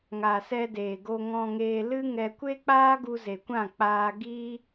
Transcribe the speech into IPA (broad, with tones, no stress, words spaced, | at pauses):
ŋa˨sɛ˧deː˨ɡo˧ ŋɔ̃˧ŋeː˧lɨ˦ ŋɛ˧kʷe˦k͡paː˦ ɡu˧ze˨kʷã˦˨ k͡paː˧ ɡiː˦